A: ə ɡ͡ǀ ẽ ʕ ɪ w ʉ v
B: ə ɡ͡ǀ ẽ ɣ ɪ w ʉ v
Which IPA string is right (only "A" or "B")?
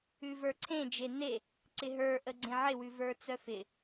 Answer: A